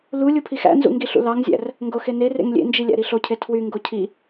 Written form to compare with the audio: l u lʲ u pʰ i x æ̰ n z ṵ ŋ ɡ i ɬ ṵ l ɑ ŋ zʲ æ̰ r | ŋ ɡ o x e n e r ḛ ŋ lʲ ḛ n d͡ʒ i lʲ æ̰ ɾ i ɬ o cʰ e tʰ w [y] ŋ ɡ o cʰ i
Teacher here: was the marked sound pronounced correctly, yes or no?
yes